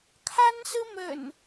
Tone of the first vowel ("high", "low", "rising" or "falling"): high